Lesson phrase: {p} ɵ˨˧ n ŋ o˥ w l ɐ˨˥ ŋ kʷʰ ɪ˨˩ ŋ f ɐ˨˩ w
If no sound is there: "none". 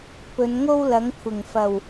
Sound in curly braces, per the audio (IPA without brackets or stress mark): p